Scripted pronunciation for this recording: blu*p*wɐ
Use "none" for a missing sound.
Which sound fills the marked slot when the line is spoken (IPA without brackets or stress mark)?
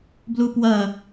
p